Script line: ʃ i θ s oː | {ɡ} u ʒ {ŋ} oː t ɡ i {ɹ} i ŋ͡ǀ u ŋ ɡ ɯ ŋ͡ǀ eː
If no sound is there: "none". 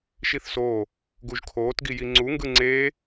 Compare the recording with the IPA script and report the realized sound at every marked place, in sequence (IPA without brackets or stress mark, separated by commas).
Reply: ɡ, kʰ, j